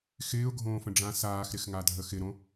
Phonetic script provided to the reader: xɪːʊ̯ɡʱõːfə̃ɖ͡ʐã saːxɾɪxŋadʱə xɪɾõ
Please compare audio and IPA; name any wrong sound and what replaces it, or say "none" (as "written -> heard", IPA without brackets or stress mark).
none